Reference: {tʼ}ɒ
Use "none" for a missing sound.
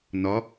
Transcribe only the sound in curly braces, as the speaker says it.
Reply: n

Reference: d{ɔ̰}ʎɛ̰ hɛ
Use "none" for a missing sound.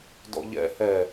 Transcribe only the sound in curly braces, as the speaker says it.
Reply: ɔ̰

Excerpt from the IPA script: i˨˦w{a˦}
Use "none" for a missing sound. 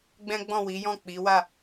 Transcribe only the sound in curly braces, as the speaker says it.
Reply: a˦˨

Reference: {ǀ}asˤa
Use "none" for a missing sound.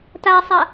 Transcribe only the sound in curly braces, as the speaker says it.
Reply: t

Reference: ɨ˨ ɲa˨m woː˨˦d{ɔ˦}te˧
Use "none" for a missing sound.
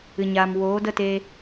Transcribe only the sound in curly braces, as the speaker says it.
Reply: ə˦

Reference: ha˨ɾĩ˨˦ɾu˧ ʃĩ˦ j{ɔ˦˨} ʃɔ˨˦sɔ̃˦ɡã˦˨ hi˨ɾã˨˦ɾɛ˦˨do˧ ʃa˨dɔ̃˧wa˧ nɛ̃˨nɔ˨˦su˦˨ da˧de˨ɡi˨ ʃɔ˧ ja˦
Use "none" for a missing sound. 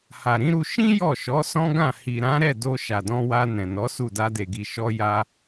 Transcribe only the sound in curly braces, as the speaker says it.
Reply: ɔ˦˨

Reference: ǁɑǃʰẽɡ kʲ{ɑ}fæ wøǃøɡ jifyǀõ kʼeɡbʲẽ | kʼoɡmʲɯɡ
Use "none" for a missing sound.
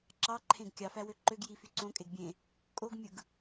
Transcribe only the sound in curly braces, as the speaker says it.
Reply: ɑ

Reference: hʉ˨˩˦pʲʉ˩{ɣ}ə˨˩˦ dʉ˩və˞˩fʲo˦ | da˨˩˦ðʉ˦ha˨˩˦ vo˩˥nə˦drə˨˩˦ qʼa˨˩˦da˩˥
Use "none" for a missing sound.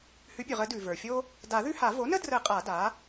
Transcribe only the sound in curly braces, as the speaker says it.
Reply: ʁ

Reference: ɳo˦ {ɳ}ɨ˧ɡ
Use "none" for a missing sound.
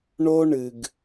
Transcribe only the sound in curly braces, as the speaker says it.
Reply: ɳ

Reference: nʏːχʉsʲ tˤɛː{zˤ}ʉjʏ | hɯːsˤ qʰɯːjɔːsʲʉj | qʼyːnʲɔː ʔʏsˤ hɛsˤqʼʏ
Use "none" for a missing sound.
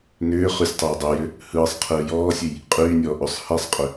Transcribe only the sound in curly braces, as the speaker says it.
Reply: dˤ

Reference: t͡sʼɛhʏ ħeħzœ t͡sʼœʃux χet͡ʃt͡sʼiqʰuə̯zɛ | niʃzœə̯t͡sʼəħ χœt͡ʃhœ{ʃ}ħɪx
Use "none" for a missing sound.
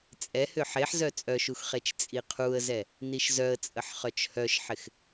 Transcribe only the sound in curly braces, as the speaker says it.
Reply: ʃ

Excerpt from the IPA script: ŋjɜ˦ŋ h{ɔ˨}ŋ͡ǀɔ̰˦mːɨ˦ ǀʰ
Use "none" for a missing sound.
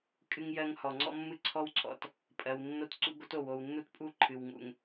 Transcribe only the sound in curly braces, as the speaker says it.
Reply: ɔ˨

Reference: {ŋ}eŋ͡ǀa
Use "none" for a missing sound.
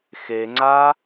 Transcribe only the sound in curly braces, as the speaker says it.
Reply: x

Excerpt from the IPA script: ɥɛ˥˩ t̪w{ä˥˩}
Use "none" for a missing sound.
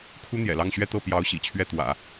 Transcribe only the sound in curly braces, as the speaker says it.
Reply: ä̰˨˩˦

